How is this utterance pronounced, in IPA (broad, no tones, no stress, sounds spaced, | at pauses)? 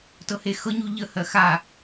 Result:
t ɤ h e x ɤ ɲ u ʎ ə h ɜ x a